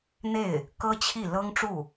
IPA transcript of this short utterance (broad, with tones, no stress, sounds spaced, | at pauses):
n̪ e˥˩ ɪ̯ | k ɤ˥ t͡ɕʰ i˥˩ l ɤ˥ ŋ ʈ͡ʂ u˥˩